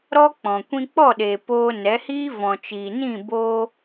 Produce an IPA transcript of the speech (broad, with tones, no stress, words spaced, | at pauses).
ɾɔ˦k͡pɔ̃˨ kʷĩ˧k͡pɔ˦˨ɗeː˨ poː˧nɛ˨˦hiː˦ vɔ̃˨t͡ʃiː˨nĩ˦˨boː˧